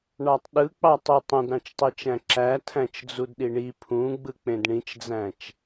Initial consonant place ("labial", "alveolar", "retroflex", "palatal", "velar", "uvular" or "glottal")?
retroflex